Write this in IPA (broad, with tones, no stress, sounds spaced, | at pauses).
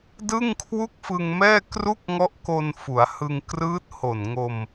d ɯ˥˩ ŋ kʰ w u˥˩ k̚ f ɯ˧ ŋ m ɛː˥˩ k r u˥˩ k̚ ŋ ɔ˦˥ ʔ k o˧ n f u˩˦ a̯ h ɯ˧ ŋ k r ɯː˦˥ t̚ h o˨˩ n ŋ o˧ m